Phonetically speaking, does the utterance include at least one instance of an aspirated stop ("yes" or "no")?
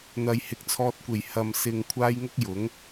yes